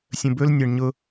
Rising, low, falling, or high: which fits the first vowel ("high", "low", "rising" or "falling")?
low